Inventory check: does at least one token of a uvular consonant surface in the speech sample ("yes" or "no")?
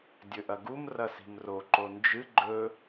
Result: no